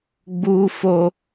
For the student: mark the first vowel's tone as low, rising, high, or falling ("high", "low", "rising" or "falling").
high